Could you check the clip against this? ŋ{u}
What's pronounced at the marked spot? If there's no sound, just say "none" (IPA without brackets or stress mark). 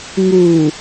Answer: u